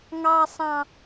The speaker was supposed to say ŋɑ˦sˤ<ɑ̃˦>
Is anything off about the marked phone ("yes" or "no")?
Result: no